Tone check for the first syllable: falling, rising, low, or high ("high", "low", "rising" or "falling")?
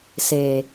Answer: low